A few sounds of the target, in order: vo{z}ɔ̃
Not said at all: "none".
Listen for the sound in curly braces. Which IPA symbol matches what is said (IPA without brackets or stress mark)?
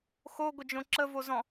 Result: z